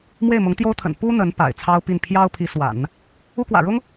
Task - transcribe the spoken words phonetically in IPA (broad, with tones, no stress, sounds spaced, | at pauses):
m w e˥˩ ɪ̯ m ʊ˧˥ ŋ t̪ j o˥ ʊ̯ t̪ʰ ə̰˨˩ n p u˥ n̪ ə˧˥ n p a̰˨˩ ɪ̯ t͡sʰ ɑ˥ ʊ̯ p i˥˩ n pʰ j ɑ˥ ʊ̯ pʰ i˧˥ s w a̰˨˩˦ n | u˥ k w ä̰˨˩ ɻ ʊ˥ ŋ